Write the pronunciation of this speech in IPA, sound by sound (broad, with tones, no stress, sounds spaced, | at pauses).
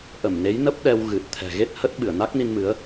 ʔ ə˧˩ m n e˨˦ j n ə˦˥ p̚ ɗ ɛ˧ w ɣ ɨ˨˩ t̚ t̪ʰ ɛ̤˨˩ ɣ e˦˥ t̚ h ə˦˥ t̚ ɓ ɨ˧˩ ə̯ n a˦˥ k̚ n i˧ n m ɨ˨˦ ə̯